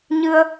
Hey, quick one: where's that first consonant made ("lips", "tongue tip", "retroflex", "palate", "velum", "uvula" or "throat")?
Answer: palate